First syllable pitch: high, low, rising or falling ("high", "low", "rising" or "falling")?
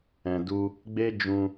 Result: low